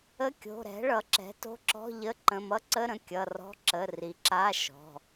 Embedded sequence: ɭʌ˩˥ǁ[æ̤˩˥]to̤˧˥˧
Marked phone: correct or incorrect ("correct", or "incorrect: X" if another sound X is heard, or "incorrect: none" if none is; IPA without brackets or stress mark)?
incorrect: ɛ̤˩˥